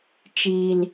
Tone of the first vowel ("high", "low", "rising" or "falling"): low